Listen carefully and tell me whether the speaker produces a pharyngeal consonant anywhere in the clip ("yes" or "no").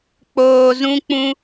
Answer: no